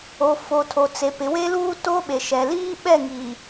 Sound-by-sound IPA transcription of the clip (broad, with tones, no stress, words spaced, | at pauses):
o˨fo˨tʰo˨t͡se˨ pɪ˨˦we˦ luː˦to˦ɓe˨ ʃɛ˨liː˦ ɓɛ˦˨ŋiː˨